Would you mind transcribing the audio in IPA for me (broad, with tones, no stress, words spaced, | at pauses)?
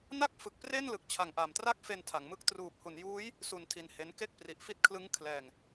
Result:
na˥˩k̚ fɯ˨˩k̚pre˥˩n lɯ˨˩k̚t͡ɕʰa˩˦ŋʔa˩˦m tra˥˩k̚fe˧ntʰa˩˦ŋmɯ˦˥k̚ truː˨˩p̚hu˩˦njuː˦˥j | su˧ntʰi˧nhe˦˥n ke˥˩k̚ pri˨˩ʔfi˦˥t̚ kʰlɯ˦˥ŋ kʰlɛː˧ŋ